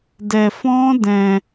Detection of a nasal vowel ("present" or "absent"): present